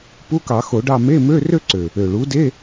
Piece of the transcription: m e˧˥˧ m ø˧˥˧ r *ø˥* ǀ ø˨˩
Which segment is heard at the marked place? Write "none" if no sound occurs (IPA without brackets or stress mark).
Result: ø˥